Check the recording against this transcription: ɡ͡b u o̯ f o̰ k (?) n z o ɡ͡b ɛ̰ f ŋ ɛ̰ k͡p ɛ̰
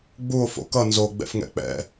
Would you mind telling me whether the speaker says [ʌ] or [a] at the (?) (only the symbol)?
ʌ